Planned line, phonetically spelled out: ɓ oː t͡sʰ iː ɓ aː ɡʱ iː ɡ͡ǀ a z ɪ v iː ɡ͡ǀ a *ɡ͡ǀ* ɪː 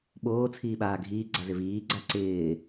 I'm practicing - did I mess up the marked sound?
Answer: yes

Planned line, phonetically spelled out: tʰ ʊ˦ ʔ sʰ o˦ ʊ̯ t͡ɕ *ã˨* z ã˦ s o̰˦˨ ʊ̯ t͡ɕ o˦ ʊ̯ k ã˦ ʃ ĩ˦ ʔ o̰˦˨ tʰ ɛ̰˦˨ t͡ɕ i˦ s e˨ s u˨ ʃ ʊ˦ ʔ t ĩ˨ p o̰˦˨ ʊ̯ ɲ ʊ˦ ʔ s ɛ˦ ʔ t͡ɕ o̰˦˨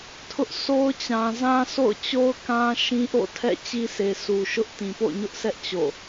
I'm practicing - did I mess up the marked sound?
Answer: no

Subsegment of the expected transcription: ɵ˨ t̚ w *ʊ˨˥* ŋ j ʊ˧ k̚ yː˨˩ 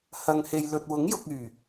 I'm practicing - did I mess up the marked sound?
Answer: no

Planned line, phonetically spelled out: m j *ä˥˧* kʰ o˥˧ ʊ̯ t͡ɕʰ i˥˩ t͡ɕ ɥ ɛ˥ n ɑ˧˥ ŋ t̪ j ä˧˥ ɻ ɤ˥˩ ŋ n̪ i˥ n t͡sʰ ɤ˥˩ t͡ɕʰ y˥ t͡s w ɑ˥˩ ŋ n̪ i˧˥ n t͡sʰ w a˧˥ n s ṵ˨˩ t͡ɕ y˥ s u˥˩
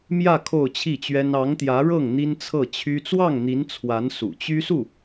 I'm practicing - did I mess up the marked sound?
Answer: no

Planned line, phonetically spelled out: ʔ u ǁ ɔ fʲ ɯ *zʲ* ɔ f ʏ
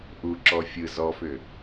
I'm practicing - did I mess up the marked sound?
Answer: yes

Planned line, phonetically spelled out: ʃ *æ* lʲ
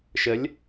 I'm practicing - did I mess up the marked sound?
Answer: yes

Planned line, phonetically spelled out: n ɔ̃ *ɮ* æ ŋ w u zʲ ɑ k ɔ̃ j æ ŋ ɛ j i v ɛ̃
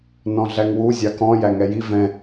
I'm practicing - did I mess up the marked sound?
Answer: no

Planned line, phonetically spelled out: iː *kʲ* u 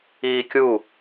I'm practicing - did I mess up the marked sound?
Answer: no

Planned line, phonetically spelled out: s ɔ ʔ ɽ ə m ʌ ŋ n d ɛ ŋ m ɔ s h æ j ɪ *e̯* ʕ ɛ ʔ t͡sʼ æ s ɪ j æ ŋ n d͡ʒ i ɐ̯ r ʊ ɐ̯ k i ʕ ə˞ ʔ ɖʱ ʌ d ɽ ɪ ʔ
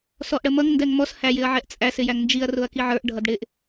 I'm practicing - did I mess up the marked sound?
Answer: yes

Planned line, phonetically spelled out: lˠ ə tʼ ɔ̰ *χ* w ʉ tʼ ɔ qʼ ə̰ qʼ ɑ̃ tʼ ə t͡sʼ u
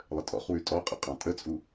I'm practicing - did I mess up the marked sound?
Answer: no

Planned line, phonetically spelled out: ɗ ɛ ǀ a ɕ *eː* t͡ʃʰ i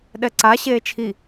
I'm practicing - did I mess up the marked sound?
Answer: no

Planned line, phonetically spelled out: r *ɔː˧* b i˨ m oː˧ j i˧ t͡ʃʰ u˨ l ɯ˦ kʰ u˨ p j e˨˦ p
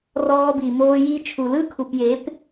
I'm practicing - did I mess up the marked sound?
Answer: no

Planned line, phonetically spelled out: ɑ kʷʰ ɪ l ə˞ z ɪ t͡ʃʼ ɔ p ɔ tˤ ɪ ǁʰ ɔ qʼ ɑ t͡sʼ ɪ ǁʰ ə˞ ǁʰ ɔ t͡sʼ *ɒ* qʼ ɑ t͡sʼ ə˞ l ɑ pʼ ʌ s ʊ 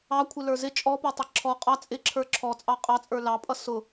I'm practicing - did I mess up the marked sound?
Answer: yes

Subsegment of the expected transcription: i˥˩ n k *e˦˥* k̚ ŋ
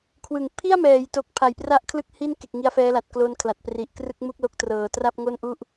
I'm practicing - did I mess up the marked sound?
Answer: yes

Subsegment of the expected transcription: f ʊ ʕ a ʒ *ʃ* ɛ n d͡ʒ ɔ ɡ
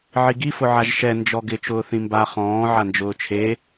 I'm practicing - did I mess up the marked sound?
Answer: no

